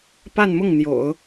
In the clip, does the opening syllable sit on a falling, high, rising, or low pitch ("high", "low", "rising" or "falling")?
falling